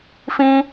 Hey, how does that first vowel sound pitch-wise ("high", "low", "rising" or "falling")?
high